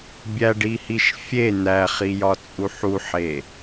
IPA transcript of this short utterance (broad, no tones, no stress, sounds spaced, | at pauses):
bʲ æ ɖ i h i ʃ fʲ e n̪ æ χ i j ɒ t͡sʼ u ħ u ħ e